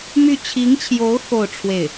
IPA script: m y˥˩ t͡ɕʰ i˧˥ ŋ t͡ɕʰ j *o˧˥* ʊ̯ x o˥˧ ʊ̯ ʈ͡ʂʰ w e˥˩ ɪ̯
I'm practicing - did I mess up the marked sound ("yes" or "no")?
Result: no